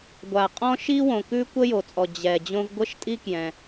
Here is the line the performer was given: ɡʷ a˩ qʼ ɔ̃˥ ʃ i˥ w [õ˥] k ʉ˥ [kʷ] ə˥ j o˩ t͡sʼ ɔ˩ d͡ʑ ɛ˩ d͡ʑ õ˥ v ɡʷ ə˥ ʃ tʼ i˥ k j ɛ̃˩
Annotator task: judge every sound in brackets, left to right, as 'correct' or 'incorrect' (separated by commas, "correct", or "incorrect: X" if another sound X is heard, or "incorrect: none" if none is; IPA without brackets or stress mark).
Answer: incorrect: õ˩, correct